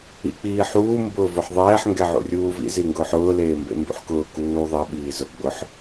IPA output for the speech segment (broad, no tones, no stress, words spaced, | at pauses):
ḭk͡piːħuː mbʊːvʊħðˤɛːħ ŋɡɛʕṵrʲuːvḭ ziŋɡʊːħʊː leːmbḛmbṵħkʊː kuː ðˤe ɓiːzʊ ɡ͡bʊħ